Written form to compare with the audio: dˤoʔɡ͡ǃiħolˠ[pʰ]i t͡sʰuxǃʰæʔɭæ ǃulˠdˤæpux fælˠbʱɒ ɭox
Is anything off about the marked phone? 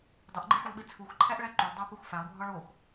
yes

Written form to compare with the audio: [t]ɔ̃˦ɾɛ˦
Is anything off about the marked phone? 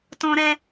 no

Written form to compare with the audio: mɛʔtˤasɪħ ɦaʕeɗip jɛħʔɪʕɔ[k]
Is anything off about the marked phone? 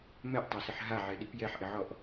yes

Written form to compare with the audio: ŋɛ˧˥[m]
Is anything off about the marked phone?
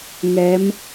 no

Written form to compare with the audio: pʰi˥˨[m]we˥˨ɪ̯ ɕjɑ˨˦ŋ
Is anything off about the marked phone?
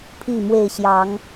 no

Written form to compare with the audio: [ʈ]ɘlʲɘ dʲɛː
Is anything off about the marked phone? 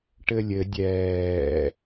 no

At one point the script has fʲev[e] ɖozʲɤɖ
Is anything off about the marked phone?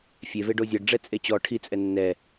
no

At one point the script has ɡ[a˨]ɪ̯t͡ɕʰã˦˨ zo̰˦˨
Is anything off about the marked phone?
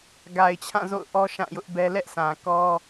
no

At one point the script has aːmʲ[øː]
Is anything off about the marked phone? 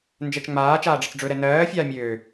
no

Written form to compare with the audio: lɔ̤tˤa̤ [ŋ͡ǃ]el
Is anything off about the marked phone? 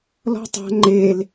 no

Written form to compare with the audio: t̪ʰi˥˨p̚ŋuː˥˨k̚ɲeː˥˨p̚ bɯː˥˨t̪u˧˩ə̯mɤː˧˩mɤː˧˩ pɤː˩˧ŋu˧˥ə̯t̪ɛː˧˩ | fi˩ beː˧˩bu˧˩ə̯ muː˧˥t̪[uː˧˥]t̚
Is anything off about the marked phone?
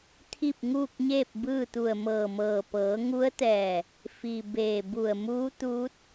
no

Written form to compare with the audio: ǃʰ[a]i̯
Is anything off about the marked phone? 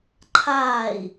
yes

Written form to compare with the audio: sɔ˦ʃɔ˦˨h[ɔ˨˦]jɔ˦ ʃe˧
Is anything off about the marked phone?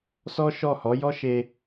no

